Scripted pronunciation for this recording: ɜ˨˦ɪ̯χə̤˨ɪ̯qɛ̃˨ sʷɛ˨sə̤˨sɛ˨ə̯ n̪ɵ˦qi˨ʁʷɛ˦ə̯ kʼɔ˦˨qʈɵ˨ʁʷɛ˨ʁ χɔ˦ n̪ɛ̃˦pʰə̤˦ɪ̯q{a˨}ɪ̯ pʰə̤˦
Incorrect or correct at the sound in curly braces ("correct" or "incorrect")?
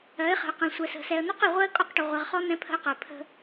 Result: incorrect